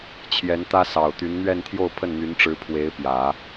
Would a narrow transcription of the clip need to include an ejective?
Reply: no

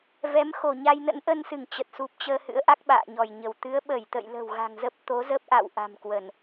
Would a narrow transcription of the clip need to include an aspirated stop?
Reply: no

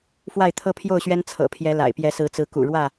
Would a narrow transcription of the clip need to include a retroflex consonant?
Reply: yes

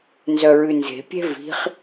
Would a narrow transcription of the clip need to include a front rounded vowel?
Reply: yes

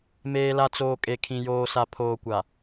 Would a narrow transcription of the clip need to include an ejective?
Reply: yes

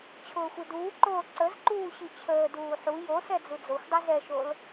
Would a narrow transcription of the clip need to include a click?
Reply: yes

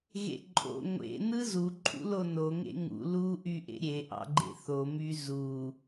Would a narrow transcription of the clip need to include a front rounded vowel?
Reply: yes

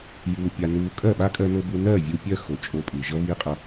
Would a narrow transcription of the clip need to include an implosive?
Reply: yes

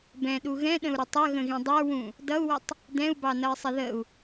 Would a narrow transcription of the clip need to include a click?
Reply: no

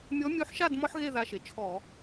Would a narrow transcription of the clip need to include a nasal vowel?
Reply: no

